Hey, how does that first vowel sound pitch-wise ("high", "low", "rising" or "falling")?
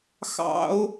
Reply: high